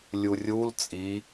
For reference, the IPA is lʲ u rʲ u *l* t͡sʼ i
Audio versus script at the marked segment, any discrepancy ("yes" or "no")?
no